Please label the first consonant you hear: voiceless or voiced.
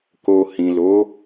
voiceless